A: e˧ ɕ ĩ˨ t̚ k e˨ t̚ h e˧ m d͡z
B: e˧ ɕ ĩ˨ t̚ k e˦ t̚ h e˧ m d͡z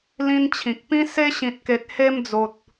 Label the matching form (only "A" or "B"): A